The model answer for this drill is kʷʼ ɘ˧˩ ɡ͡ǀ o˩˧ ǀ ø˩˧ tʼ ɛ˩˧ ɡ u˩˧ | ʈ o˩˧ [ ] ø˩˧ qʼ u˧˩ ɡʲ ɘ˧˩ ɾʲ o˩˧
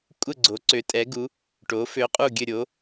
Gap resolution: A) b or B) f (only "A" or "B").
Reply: B